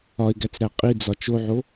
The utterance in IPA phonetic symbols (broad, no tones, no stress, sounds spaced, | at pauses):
ɒ ɪ̯ ɡ æ t͡s ɾ æ qʼ i d͡z ɒ t͡ʃ o ʕ o